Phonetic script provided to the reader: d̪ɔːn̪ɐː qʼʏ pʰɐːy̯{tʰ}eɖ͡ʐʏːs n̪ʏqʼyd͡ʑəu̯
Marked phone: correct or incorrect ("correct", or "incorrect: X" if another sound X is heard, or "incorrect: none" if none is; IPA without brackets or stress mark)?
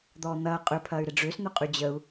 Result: incorrect: ɾ